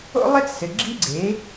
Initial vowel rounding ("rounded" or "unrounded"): rounded